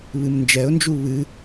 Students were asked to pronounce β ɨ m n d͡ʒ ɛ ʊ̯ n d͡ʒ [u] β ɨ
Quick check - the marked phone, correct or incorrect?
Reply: correct